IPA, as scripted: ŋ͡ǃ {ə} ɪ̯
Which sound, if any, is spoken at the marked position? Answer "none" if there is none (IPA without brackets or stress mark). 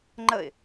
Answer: ə